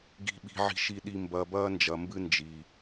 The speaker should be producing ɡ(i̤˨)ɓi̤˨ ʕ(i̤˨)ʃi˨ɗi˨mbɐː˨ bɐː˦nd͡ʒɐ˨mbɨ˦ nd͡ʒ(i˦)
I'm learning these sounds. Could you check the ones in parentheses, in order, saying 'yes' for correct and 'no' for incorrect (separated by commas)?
yes, yes, no